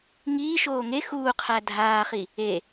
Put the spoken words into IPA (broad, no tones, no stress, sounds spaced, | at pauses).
ŋ iː ʃ oː ŋ e x uː qʰ æ dʱ aː χ i | e